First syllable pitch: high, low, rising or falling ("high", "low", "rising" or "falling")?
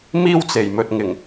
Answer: high